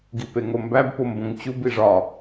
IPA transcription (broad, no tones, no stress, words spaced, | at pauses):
ɡipeŋombæb pombõŋt͡ɕub iʐɒ